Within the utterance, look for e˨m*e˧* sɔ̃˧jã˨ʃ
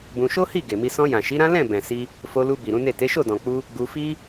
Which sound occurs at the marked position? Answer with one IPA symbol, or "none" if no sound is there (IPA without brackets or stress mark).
i˧